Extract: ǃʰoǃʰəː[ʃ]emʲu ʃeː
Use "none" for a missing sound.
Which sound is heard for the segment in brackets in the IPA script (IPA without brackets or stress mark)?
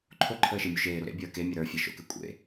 ʃ